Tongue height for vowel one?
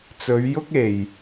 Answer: mid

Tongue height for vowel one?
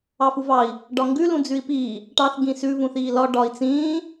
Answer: low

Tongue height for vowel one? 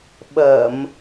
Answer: mid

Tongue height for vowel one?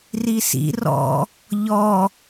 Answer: high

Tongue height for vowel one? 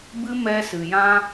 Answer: high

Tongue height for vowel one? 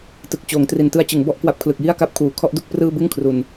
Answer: high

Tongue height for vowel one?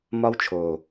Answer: low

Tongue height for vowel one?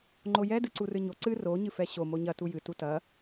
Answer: mid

